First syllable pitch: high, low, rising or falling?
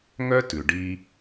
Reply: high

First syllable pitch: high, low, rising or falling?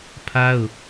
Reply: high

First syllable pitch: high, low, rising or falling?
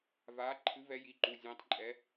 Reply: rising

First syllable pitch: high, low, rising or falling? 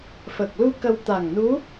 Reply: low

